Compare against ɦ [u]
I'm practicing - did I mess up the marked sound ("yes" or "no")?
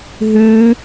yes